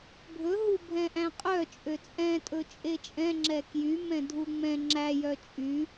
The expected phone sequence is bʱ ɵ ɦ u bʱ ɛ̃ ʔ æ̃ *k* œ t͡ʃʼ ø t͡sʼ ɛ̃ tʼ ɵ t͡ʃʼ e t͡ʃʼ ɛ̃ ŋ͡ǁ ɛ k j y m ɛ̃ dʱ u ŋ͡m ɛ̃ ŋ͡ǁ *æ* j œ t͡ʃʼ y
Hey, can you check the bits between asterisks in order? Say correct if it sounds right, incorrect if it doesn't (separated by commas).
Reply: incorrect, correct